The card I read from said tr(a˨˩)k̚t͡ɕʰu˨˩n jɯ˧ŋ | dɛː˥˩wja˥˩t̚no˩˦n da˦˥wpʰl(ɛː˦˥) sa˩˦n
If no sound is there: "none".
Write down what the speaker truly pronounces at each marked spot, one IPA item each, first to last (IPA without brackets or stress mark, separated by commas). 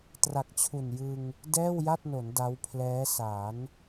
a˨˩, ɛː˦˥